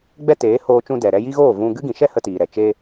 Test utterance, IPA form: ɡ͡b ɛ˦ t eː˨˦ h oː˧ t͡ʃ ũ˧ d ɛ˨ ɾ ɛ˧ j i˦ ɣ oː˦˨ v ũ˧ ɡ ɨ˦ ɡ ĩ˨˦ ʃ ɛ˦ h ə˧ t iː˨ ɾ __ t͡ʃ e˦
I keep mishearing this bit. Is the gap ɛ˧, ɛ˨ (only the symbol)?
ɛ˨